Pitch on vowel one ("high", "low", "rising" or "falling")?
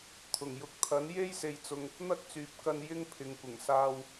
low